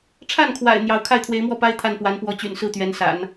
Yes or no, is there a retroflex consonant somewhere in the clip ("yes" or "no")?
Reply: yes